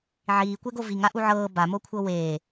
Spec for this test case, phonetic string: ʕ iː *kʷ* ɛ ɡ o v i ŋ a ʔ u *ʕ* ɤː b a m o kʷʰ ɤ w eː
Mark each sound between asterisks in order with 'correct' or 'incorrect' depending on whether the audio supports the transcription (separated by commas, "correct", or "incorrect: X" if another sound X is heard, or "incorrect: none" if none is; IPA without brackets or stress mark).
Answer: correct, correct